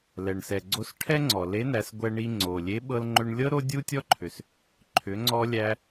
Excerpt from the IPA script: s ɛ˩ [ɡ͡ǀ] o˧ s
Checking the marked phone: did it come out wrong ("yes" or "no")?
no